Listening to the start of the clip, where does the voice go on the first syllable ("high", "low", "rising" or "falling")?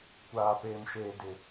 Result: low